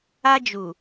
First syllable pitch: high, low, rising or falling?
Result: high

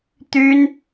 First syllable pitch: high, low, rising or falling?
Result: high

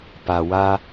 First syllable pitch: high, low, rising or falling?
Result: low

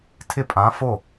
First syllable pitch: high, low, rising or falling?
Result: falling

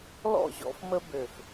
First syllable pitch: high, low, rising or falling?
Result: falling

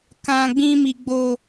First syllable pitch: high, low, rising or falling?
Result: low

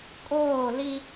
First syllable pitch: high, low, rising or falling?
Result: falling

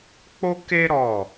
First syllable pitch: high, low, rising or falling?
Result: high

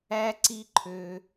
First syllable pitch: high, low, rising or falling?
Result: high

